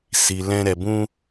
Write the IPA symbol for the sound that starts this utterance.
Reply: s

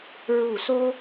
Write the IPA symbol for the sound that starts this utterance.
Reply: ɹ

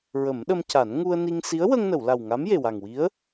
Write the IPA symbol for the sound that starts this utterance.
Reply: ɹ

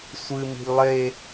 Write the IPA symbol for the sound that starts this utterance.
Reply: sʷ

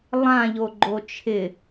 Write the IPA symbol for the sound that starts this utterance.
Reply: lˠ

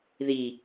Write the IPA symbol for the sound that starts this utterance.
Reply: ð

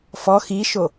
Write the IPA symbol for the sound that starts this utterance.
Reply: f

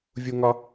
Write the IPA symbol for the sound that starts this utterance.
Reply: vʲ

